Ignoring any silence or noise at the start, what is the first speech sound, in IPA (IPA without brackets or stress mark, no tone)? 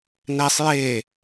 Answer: n